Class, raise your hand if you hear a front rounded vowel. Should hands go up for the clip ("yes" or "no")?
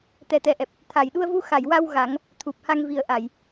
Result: no